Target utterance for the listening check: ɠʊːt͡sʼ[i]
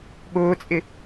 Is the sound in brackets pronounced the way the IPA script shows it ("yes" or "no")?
no